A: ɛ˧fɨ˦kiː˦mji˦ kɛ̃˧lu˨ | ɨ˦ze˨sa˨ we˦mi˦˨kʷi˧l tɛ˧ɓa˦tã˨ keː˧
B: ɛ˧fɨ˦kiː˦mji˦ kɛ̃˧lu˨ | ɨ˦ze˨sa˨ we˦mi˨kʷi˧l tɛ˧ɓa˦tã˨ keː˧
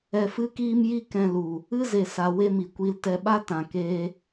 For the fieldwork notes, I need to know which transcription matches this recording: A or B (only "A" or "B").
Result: B